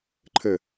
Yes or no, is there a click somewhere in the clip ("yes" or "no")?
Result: yes